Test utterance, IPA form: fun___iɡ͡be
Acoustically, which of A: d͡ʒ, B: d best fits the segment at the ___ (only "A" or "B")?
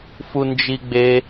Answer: A